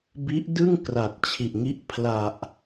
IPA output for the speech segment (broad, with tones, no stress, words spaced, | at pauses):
bi˦˥ʔdɯ˥˩ŋ kra˨˩t̚t͡ɕʰi˨˩ʔ ŋi˦˥ʔpʰla˨˩ʔ